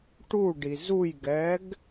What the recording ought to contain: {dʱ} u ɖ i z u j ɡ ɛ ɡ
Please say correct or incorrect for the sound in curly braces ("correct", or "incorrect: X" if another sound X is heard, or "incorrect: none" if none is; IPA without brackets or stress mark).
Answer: incorrect: ʈ